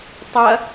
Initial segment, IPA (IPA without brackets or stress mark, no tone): tˤ